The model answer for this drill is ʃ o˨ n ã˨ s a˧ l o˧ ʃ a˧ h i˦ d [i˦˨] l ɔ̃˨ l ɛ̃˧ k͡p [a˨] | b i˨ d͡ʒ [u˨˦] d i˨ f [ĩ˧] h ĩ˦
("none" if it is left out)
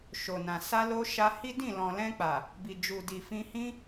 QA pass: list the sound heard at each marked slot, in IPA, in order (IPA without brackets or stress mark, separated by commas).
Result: ĩ˦˨, a˨, u˨, ĩ˧